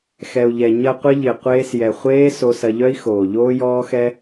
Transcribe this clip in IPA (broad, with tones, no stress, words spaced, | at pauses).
xɛ˨u̯ʎɛ˨ ɲɐ˧ qʷɪ˦ʎɪ˨ qʷeː˧sjɛ˨χʷeː˦ so˧sɐ˧ʎœ˦i̯xoː˨ ʎoː˦jɔː˦xɛ˦